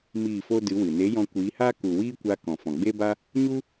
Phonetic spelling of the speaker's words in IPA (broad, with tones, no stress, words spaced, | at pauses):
miː˦˨fo˦ dɨ˨˦wɨ˨ ne˨˦ jɔ̃˧kʷiː˨˦haː˦ ku˨wiː˦kʷa˧ kɔ̃˨fɔ̃˨ɡ͡be˦ba˦ | ɲu˦